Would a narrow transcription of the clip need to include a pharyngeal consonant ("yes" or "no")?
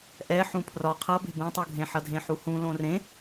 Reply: yes